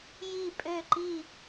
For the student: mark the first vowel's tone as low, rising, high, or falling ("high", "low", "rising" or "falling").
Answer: falling